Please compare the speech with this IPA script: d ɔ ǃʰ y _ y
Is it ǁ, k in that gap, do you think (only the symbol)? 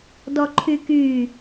k